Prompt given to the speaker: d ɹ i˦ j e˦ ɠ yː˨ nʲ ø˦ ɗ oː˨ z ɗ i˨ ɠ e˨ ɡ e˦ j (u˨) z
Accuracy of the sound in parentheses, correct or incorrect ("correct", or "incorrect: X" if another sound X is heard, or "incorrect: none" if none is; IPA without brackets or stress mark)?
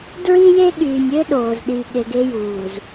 incorrect: uː˨